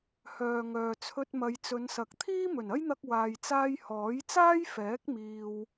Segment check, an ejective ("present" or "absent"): absent